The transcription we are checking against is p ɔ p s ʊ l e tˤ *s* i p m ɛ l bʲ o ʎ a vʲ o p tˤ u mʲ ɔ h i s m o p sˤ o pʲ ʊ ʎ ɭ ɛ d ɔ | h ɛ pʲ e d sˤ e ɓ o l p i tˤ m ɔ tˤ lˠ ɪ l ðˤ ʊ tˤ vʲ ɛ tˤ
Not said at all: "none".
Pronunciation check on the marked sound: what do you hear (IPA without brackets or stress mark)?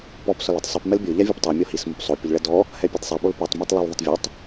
sˤ